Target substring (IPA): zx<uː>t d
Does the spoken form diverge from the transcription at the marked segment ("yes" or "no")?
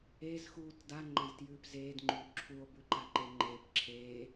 no